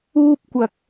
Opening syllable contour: high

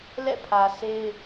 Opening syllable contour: falling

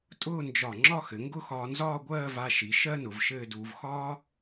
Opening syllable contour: falling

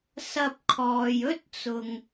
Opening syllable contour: high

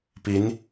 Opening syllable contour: rising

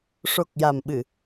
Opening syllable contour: low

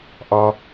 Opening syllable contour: high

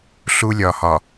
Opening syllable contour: high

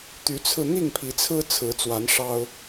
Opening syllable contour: rising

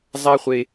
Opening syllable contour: high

